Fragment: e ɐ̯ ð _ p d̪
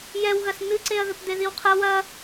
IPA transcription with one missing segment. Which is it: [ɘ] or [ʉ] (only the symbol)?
ɘ